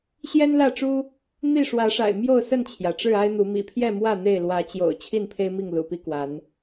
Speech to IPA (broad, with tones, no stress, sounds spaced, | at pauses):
ɕ j ɛ˦ n l ä˥˨ ʈ͡ʂ u˦ | n̪ i˥˨ ʂ w ä˨˦ ʂ a̰˨˩ ɪ̯ m j o˥˨ ʊ̯ s ə˥˨ n t͡ɕʰ j ä˩ ʈ͡ʂ ɻ̩˥˨ a˦ ɪ̯ n̪ u˨˦ m ḭ˨˩ pʰ j ɛ˥˨ m w ä˥˨ n̪ e˥˨ ɪ̯ l w ä˨˦ t͡ɕ j o̰˨˩ ʊ̯ t͡ɕʰ i˥˨ n pʰ e˦ ɪ̯ m i˥˨ ŋ l ṵ˨˩ p i˦ k w a˨˦ n